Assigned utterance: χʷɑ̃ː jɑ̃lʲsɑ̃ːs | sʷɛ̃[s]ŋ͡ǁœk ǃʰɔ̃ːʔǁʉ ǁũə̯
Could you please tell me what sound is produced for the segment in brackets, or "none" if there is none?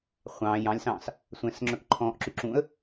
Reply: s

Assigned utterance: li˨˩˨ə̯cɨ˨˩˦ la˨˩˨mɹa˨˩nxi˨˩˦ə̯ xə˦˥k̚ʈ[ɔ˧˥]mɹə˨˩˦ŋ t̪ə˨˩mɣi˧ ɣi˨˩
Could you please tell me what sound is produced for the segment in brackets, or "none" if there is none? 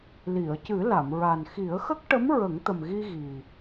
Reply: ə˧˥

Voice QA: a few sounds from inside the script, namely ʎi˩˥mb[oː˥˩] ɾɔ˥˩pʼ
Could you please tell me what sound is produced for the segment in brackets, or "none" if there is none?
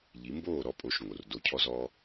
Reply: oː˥˩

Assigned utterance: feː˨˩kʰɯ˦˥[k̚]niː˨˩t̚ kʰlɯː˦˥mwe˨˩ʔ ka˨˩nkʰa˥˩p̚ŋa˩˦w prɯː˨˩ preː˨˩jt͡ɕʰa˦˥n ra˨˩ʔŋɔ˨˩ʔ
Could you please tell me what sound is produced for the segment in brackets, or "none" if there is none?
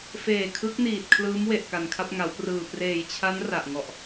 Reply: k̚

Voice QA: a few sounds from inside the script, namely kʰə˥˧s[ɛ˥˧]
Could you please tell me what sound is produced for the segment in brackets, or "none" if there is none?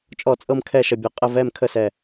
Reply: ɛ˧˩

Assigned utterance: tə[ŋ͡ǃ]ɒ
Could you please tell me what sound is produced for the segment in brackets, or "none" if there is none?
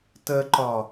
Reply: ǃ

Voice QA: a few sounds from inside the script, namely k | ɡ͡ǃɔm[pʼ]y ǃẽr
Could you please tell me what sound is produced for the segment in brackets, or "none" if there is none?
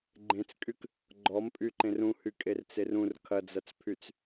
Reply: pʼ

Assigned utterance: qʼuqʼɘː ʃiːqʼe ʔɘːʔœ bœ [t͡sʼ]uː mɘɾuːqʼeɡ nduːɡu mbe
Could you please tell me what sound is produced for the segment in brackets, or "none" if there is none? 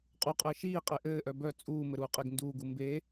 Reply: t͡sʼ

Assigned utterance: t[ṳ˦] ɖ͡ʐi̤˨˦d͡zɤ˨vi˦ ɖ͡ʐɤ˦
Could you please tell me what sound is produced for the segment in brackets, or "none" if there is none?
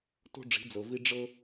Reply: o̤˦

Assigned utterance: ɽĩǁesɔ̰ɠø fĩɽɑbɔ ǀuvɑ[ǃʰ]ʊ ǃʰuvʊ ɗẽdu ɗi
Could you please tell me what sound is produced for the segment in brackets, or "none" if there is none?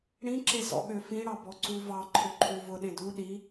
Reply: ǃʰ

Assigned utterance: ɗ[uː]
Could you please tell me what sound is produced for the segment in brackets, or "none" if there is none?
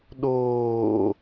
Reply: oː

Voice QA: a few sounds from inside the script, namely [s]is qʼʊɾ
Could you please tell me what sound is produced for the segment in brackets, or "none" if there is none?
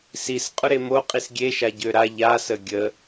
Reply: s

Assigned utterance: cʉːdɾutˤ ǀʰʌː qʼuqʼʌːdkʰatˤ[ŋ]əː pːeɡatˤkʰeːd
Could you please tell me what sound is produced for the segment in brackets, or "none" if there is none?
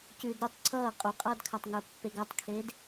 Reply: ŋ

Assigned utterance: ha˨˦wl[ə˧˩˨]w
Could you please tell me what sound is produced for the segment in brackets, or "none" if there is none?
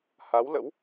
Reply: ə̰˧˥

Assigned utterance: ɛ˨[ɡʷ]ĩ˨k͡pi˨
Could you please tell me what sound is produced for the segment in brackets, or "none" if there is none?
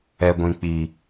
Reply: ɡʷ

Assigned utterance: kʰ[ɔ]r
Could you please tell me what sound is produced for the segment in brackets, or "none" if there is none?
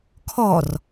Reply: ɔ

